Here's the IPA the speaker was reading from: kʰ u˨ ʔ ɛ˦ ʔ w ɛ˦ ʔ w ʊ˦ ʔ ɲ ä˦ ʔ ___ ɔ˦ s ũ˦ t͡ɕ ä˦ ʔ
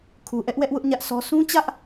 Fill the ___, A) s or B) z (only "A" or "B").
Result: A